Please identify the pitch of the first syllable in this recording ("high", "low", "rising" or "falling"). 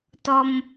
high